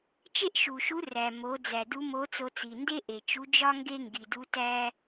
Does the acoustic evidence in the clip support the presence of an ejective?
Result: no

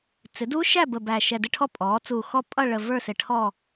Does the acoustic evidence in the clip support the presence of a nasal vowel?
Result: no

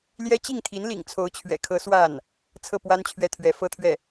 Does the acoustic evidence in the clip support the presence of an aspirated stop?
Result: yes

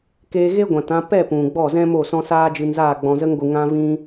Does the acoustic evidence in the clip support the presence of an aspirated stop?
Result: no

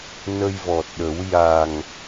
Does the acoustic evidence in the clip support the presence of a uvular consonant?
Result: no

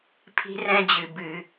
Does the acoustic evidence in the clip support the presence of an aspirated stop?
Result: yes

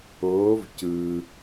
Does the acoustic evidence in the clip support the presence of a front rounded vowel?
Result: no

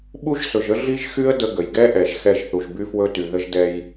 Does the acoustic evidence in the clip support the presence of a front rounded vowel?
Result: yes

